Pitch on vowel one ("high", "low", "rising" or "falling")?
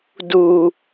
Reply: low